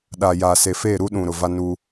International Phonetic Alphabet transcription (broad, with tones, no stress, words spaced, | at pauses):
ɗa˨ja˨ se˨fe˦˨ ɾu˦ɗũ˨ ɾʊ˨va˦nu˦